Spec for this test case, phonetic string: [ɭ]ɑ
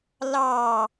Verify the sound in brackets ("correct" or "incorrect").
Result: incorrect